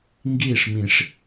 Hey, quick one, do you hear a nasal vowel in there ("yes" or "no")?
yes